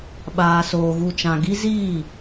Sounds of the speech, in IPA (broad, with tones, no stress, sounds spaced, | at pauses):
ɓ aː˨ s oː˨ ɣ u˨ t͡ʃ ã˨ ɡ i˦ z iː˦˨